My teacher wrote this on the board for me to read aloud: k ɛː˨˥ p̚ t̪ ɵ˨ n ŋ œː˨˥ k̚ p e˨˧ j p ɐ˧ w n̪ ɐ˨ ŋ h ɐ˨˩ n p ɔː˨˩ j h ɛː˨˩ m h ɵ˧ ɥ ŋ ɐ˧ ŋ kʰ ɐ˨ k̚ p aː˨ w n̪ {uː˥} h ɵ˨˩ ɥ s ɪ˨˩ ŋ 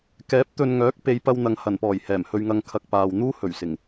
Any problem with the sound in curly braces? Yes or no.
no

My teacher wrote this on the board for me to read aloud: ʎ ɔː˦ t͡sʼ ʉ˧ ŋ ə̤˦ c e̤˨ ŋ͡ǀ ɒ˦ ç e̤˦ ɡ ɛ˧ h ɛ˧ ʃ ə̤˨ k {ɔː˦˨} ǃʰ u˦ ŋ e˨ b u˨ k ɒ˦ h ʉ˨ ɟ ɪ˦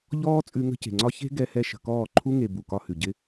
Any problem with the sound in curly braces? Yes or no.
no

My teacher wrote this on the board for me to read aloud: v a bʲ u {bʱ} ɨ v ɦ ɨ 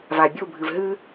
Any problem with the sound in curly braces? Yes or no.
no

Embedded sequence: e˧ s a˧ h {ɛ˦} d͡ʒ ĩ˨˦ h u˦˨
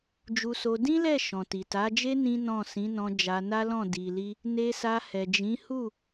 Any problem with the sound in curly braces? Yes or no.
yes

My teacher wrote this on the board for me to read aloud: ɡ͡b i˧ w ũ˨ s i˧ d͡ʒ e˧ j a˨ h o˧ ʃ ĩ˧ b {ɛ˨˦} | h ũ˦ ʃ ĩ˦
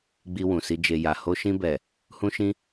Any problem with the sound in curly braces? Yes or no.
yes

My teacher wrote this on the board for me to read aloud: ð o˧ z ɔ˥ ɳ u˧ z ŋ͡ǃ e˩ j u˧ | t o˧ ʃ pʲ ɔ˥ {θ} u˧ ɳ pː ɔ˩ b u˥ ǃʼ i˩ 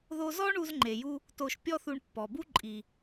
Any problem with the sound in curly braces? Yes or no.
no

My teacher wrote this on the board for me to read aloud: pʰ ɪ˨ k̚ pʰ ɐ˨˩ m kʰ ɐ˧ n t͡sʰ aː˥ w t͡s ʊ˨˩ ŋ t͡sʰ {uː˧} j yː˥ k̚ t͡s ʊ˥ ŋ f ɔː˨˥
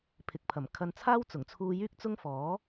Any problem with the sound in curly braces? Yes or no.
no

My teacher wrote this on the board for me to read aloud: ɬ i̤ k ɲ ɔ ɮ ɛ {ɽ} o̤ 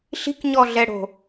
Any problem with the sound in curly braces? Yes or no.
no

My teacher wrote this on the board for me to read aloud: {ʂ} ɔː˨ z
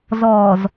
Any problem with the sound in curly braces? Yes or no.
yes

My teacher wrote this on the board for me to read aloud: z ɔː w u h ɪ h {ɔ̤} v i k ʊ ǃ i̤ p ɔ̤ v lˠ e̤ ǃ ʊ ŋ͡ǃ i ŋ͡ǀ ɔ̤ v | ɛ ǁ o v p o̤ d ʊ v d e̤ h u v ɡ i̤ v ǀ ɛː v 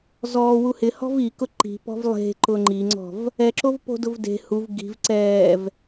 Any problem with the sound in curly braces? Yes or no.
no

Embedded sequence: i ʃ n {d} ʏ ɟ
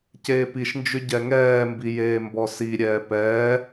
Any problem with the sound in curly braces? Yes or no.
yes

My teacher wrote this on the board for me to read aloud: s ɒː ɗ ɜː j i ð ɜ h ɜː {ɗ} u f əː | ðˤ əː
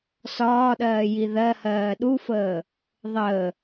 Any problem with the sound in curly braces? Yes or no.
no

